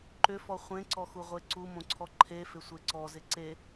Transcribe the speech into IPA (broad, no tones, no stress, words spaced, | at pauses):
ǃʏfɔ χʷẽǀɔxuʁʷe ǀumõǀʰɔ ǃʰefɪsʷe ǀɔzɪ ǀe